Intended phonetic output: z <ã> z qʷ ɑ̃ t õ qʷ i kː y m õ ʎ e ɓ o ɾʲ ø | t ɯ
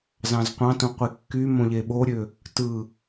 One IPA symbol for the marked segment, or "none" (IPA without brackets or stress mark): ɑ̃